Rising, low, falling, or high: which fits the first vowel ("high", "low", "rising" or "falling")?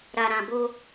low